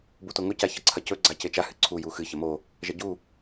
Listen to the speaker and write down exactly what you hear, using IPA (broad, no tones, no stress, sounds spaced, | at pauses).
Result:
b u t o ŋ ɵ c a ç ɐ ǀʰ ɐ c ɵ ɡ͡ǀ a c e t͡ʃ a h ɨ ǀʰ u j u x ɨ ç ɐ m o | ʒ ɐ ɟ u